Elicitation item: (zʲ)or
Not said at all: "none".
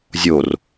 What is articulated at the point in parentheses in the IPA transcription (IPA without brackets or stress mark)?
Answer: zʲ